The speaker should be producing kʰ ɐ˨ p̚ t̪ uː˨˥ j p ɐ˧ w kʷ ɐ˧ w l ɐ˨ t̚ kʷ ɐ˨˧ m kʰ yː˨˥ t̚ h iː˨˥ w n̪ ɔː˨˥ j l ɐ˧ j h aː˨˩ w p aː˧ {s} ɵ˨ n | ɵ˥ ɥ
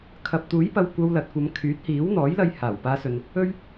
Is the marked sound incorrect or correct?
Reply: correct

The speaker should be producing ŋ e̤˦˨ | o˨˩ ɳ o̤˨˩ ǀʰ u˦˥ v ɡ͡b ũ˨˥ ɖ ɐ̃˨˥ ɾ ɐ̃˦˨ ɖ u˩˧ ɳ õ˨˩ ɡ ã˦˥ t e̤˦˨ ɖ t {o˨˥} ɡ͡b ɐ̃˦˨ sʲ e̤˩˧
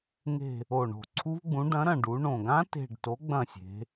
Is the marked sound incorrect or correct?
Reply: correct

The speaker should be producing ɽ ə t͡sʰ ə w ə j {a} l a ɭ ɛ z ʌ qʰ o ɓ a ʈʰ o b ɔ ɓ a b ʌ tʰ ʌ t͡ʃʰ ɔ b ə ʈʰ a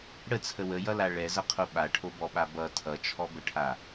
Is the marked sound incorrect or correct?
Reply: incorrect: ʌ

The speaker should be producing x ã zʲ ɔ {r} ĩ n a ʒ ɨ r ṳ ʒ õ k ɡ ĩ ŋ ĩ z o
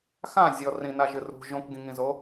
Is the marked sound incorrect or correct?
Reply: correct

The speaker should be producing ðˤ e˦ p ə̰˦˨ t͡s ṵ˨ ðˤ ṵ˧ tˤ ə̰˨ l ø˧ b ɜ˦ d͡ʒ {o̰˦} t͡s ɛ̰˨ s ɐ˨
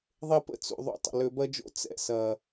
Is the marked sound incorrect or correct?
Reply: correct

